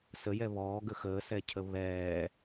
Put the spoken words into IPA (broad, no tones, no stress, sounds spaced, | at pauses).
s ə j ɛ β ɔː ɡ ə x əː s ɛ cʰ ə β ɛː